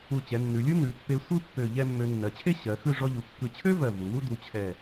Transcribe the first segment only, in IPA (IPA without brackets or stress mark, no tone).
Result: u